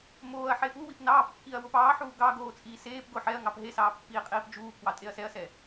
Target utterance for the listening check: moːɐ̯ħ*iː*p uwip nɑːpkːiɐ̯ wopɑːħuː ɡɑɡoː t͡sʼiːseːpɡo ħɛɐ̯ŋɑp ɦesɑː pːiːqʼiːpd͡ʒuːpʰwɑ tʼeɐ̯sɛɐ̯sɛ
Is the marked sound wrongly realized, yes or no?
yes